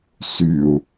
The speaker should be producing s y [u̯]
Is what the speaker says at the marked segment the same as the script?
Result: yes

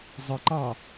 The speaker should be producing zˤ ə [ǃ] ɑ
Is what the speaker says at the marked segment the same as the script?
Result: yes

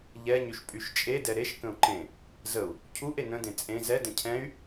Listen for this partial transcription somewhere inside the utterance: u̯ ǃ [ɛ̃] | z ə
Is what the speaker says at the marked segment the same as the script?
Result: no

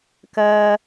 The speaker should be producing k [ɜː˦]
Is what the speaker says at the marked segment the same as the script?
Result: yes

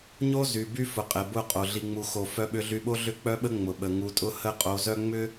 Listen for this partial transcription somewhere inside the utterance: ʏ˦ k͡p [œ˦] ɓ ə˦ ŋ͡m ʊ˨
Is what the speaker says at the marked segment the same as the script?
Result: yes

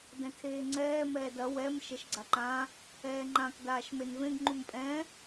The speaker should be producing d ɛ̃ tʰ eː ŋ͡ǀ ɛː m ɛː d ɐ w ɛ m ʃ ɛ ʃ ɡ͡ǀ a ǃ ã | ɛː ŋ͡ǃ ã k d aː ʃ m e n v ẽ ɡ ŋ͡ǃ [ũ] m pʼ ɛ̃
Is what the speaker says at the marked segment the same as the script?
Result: no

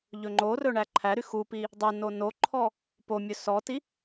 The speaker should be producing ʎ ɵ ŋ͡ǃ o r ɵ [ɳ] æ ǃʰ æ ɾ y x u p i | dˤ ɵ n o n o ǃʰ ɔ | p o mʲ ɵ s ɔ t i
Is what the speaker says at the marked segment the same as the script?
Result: yes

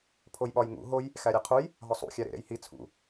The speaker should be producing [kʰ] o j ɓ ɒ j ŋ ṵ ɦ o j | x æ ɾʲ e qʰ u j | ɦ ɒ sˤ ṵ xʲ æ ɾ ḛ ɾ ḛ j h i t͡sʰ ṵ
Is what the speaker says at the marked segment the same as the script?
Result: no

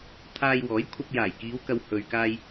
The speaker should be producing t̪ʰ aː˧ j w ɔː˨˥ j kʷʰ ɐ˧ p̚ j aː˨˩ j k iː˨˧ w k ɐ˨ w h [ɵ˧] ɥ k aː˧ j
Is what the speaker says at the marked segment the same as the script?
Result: no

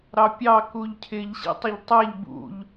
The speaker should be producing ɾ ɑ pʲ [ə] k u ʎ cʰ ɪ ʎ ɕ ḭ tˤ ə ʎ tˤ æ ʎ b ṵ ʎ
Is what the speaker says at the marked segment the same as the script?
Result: no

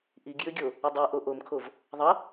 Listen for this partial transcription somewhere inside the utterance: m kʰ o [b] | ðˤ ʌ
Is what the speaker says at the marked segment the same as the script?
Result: no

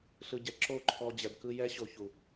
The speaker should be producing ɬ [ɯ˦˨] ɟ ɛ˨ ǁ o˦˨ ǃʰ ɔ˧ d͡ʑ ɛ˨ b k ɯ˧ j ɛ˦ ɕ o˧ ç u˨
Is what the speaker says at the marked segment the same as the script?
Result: no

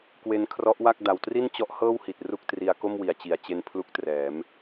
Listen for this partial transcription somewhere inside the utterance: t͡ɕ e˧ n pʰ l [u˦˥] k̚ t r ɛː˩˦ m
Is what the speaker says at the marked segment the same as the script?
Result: yes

